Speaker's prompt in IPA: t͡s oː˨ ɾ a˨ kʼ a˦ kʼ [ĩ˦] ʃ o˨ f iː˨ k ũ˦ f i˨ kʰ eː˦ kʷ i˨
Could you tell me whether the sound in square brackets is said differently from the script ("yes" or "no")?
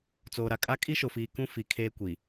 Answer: yes